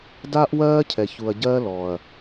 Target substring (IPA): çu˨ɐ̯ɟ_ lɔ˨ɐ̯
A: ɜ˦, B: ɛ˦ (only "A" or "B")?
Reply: A